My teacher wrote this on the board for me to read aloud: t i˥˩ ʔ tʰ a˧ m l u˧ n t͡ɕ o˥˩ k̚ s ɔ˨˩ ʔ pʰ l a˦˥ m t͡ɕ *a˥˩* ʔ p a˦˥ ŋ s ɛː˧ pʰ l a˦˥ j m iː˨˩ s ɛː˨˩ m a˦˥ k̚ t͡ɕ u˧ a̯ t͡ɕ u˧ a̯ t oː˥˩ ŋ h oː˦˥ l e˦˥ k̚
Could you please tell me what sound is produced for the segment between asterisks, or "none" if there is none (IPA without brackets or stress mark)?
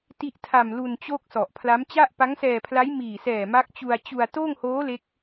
a˥˩